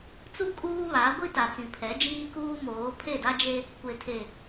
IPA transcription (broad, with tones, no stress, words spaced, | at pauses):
t͡su˦ kʼuː˦βa˨˦ ɡʷi˦ta˨t͡sĩ˨ pʰɛ˨˦d͡ʒiː˦kuː˦ moː˨˦ pʰe˦˨da˦d͡ʒe˦ | kʷe˨tʰe˨